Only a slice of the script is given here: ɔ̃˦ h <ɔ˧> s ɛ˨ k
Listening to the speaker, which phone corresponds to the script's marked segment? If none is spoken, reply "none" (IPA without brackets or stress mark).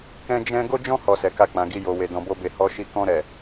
ɔ˧